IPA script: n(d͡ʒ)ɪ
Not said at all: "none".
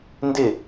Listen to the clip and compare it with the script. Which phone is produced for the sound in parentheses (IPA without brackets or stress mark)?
d